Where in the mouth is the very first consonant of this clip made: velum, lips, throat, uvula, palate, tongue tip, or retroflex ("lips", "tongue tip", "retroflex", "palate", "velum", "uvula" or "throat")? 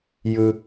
palate